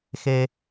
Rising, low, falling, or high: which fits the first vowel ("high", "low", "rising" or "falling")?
low